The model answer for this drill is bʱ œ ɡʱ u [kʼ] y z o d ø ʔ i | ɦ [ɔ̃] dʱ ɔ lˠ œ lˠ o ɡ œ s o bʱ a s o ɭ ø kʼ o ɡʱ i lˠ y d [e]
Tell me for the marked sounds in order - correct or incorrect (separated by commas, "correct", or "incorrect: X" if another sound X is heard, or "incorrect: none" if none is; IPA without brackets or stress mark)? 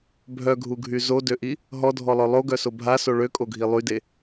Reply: incorrect: ɡʱ, incorrect: ɔ, correct